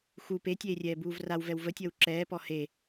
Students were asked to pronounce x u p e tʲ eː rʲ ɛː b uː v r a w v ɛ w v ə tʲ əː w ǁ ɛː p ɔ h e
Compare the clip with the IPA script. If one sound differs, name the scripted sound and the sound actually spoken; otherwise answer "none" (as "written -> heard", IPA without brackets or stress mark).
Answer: none